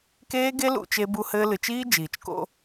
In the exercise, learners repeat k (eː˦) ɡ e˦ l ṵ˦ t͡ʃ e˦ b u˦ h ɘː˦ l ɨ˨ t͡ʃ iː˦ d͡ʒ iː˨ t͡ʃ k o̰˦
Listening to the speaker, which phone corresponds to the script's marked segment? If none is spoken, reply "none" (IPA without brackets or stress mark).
eː˦